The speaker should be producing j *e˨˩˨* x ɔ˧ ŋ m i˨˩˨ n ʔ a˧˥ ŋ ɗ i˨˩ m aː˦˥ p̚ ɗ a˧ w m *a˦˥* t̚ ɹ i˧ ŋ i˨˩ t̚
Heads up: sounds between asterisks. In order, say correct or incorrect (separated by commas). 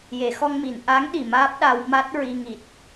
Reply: correct, correct